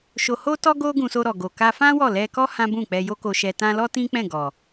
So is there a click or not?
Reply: no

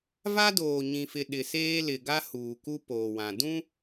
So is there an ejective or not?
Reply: no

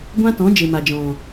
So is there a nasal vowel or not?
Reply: yes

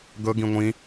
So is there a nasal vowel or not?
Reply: yes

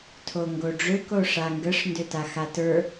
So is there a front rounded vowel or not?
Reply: yes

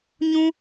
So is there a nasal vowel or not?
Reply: yes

